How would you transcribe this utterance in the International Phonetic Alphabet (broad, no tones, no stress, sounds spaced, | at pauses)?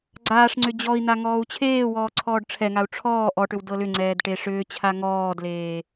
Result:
ɡ͡ǀ aː ʂ ŋ͡ǀ ʏ d͡ʑ ɔ i̯ n̪ a ŋ ɔː u̯ t͡ɕʰ eː w ɔː ǀʰ ɔː ɖ ʈ͡ʂʰ ɛ ŋ a u̯ ʈ͡ʂʰ ɔː ʔ ɔ ʈ ʏ w d ɤ l ʏ ŋ͡ǀ ɛː d ʈ e ʂ ʏː t͡ɕʰ a ŋ ɔː d l eː